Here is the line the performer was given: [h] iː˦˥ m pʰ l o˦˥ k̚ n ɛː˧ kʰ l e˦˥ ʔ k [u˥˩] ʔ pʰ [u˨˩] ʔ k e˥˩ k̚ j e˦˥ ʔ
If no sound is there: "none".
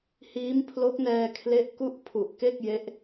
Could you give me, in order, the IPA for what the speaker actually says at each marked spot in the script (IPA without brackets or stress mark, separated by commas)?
h, u˥˩, u˨˩